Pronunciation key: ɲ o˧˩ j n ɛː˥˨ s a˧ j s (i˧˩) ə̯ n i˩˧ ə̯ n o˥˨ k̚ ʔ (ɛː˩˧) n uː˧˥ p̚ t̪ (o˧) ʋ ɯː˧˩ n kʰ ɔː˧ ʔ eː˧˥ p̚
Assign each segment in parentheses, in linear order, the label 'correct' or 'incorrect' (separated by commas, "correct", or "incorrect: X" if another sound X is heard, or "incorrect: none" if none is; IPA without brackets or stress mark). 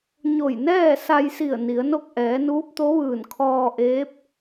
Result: correct, correct, incorrect: o˧˥